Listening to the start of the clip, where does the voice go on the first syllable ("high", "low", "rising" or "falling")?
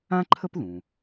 high